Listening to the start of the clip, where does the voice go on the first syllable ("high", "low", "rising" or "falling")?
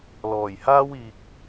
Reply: low